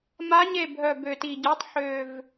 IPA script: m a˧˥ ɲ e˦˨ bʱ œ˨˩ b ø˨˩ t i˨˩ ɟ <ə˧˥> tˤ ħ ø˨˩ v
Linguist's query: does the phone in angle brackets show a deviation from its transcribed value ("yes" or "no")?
yes